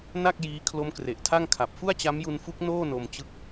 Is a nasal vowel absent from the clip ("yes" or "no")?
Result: yes